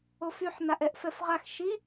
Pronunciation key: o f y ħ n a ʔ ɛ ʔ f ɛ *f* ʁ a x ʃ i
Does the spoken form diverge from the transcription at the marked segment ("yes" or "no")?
no